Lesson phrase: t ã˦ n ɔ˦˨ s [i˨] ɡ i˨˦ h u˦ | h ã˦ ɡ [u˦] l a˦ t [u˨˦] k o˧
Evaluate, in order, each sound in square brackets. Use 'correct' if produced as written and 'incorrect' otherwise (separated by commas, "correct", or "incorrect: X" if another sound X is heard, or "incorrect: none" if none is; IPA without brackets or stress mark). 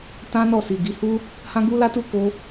correct, correct, incorrect: u˦˨